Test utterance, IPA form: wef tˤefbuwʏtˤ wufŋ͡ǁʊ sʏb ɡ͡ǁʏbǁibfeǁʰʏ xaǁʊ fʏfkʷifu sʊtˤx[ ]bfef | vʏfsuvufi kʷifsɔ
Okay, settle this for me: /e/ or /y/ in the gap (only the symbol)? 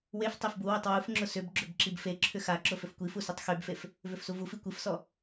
y